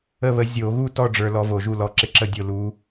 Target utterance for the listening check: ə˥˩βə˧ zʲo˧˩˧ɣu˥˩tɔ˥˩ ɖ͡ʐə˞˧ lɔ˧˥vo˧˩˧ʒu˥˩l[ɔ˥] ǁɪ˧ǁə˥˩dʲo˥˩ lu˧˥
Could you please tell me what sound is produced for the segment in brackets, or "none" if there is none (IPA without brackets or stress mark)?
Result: ɔ˧˥